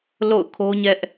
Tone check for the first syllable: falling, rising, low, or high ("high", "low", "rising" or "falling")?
falling